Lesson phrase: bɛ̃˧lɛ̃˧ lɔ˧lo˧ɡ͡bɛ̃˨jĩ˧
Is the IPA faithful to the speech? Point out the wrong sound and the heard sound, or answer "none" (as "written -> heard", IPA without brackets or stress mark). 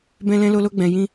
ɔ˧ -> o˧